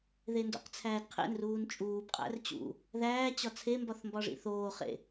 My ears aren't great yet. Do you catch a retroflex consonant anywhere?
yes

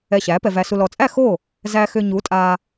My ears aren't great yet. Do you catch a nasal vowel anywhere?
no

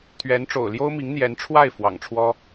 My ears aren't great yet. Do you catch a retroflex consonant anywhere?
yes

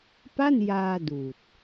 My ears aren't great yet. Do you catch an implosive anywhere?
no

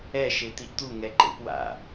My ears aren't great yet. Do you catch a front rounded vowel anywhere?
no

